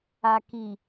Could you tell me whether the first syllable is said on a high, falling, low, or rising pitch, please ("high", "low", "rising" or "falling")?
low